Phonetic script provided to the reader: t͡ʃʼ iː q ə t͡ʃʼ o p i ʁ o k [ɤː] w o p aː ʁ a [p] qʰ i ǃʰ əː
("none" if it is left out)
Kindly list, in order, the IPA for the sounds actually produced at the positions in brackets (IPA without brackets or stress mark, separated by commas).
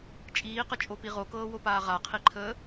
ɤː, none